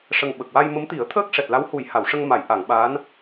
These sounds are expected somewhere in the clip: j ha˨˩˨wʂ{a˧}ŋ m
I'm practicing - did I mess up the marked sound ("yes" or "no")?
yes